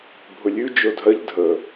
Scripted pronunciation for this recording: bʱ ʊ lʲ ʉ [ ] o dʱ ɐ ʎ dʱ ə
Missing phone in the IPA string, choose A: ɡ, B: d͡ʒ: B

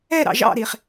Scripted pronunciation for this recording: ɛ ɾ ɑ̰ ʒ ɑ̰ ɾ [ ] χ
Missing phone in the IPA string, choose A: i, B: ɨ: A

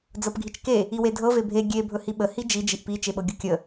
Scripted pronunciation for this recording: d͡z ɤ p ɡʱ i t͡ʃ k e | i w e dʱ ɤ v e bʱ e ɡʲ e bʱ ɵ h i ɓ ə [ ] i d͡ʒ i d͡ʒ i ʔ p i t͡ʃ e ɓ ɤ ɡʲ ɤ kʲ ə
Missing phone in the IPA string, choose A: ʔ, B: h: B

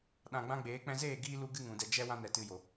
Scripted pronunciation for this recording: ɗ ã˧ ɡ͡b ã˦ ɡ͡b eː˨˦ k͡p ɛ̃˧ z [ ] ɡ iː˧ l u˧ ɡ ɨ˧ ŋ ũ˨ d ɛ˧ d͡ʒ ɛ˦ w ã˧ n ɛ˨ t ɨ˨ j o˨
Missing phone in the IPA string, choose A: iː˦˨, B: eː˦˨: B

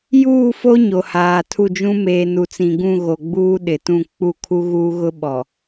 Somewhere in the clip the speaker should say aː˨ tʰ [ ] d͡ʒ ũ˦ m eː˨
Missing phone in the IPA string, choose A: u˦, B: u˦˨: B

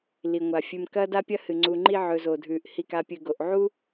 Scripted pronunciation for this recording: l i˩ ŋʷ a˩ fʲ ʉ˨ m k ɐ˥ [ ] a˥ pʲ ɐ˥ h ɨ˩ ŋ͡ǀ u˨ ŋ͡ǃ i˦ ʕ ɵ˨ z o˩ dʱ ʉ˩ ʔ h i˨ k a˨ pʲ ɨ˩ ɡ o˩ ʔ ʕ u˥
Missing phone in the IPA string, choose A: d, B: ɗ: A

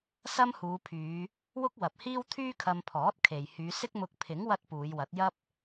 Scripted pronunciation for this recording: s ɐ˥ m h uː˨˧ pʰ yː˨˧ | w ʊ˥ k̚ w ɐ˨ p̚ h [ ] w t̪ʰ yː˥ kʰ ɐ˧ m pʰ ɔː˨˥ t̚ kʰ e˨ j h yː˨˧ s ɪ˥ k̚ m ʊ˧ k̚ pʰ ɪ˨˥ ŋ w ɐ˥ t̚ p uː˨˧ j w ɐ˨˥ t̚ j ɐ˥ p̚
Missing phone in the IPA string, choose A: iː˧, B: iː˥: B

